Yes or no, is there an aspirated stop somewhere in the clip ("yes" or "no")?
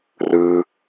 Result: no